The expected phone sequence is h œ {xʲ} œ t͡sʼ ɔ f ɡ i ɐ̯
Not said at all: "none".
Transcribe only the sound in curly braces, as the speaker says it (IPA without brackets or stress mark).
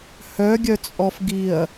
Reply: ɡʲ